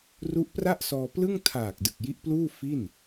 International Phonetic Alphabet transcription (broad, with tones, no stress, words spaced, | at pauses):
ru˦˥ʔpra˥˩ʔsɔː˧plɯ˥˩ŋ tʰaː˨˩k̚ dɯ˨˩k̚ji˦˥ʔpluː˥˩ fi˥˩n